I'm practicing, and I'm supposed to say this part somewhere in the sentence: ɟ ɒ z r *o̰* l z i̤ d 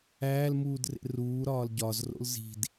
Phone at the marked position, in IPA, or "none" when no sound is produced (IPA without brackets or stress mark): o̰